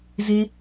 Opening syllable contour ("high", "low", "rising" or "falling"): low